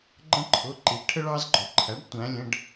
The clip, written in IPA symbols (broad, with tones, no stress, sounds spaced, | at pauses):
ɡ͡ǃ ə̃˦ ǃʰ ʊ˩˧˩ ǃ i˩˥ ʈʰ ə˦ ɭ ɑ˦ z ɡ͡ǃ ɔ˩ ǃʰ æ˩˥ ɖ tʷ æ̃˩˧ lʲ ə̃˩˧˩ ɖ